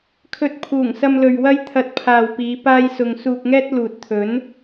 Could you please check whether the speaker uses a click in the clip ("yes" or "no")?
no